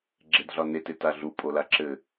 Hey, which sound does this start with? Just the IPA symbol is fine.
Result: ɡ͡ǁ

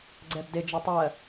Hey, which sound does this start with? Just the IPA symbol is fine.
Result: ɡ͡ǀ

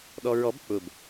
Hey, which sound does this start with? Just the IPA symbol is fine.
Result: ɗ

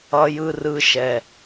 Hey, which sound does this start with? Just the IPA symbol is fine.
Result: ʌ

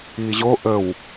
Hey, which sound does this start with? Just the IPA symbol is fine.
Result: iː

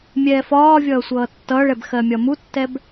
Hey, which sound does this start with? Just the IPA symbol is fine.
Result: mʲ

